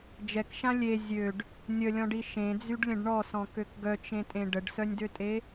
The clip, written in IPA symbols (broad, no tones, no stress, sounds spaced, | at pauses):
d͡ʒ ɛ k ʃ ã lʲ e zʲ ø ɖ | nʲ ə lʲ ɔ̃ ɖ i ʃ ẽ d͡z y ɖ lʲ ə̃ ɖ ɳ ɔ s ɔ̃ k ø k ɡ œ t͡ʃ ẽ tʼ ẽ ɖ ə ɖ s œ nʲ d ø tʼ e